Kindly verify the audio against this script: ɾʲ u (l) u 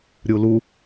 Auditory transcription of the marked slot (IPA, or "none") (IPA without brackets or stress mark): l